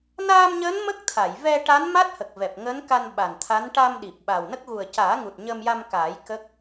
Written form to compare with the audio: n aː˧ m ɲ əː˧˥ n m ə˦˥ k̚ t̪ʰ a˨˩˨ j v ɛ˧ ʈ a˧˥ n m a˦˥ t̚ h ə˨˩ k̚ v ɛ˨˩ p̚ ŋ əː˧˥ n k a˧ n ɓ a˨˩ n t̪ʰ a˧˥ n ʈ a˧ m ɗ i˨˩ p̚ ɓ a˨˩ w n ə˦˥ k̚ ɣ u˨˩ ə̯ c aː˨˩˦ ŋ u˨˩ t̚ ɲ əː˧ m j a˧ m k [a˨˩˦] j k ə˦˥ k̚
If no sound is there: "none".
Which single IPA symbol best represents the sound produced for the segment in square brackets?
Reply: aː˨˩˦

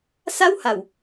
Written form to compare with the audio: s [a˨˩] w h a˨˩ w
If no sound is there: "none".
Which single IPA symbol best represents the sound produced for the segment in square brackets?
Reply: a˥˩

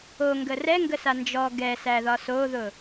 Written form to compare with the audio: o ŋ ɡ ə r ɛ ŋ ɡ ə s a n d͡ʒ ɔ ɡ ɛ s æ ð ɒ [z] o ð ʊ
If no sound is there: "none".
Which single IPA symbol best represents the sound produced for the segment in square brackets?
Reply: s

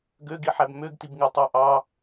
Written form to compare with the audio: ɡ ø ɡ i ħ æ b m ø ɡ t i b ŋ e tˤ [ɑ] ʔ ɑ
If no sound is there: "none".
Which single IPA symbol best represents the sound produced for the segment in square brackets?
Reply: ɑ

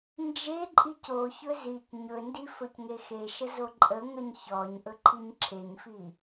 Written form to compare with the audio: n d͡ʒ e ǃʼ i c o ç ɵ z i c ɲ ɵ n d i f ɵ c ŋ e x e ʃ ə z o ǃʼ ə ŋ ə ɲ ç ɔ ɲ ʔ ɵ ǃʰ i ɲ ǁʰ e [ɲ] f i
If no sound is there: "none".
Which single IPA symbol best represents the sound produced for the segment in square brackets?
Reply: ɲ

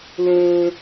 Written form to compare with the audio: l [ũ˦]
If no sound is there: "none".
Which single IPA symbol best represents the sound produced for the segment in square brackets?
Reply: ũ˦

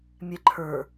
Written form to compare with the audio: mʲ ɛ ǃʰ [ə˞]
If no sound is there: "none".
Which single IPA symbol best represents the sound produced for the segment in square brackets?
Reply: ə˞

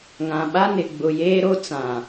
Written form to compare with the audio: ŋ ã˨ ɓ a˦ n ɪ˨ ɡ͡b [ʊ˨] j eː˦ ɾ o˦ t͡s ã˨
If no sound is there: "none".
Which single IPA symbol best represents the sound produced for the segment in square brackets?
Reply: ʊ˨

